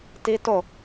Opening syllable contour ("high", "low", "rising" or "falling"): high